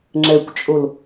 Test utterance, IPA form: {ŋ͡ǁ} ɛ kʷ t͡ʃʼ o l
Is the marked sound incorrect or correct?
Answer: correct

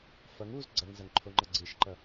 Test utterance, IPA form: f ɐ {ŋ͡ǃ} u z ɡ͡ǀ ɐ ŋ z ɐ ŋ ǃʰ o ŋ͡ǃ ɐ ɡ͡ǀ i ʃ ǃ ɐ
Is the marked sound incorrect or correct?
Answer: incorrect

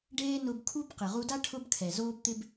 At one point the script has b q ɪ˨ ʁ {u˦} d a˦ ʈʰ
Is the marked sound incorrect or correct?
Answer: incorrect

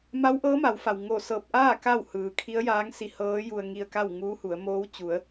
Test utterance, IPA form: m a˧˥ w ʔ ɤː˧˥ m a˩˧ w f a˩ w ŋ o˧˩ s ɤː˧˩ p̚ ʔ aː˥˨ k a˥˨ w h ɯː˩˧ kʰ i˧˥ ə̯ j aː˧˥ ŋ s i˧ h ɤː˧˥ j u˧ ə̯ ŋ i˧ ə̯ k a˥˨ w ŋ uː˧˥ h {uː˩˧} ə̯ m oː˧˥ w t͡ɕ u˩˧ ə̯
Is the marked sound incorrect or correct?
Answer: incorrect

